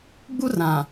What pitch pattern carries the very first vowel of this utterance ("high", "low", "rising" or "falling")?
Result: high